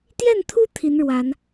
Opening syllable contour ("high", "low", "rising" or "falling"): falling